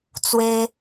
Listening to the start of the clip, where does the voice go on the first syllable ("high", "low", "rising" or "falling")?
high